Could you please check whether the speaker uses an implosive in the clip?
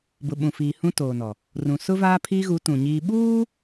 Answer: yes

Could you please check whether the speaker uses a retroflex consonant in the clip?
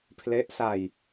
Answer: no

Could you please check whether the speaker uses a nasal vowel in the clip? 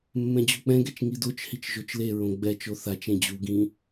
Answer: yes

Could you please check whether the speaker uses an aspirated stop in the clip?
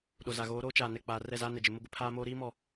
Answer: yes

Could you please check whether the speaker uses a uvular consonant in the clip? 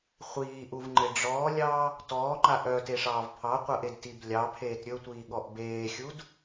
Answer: yes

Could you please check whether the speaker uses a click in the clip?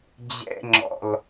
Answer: yes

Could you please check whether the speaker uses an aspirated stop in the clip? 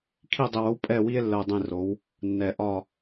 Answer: yes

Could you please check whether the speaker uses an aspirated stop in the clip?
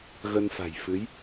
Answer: no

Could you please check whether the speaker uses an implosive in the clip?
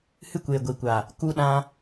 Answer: yes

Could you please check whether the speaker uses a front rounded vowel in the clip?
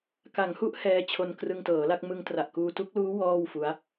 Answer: no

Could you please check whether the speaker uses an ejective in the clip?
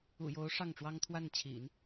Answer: no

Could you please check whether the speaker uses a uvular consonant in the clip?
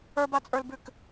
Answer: no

